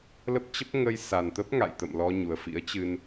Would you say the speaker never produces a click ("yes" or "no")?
yes